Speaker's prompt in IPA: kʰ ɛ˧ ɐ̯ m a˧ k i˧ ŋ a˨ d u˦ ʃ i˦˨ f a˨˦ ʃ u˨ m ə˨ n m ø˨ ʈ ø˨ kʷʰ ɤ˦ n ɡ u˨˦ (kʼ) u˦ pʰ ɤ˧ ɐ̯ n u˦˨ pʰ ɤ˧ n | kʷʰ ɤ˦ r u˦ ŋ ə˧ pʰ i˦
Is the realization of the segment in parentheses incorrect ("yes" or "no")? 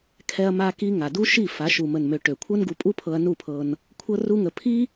yes